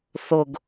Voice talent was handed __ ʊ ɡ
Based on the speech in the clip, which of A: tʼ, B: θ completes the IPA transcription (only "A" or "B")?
B